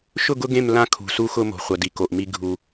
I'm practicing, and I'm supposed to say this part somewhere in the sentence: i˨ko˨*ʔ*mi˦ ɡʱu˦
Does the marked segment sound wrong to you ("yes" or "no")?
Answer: no